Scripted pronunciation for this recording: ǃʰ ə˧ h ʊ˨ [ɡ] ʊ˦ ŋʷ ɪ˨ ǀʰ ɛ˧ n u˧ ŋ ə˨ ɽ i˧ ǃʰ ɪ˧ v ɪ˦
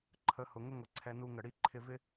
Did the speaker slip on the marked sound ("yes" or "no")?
yes